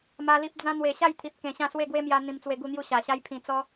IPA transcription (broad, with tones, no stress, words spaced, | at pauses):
ma˧li˦p̚ d͡zã˧ n̪we˨˩ɕa˥˧j t̪ʰi˨p̚kẽ˨˩ɕã˥˧ swe˥˧ɡwe˦mja˧ n̪ĩ˧mt͡swe˧ɡu˥˧n̪ju˥˧ ɕa˨˩ɕa˦jpʰĩ˧ t͡sɔ˦